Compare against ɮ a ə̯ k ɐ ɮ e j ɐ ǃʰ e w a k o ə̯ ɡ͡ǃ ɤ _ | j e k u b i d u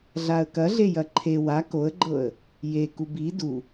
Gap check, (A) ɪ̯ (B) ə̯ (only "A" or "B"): B